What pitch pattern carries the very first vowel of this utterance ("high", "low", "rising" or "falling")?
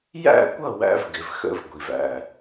falling